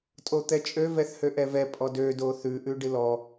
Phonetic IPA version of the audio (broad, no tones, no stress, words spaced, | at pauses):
tʼot̪ɛt͡ʃʼø vɛθhøʔɛvɛ pʼɔdø doθʉ ʔʉɖɨlɔ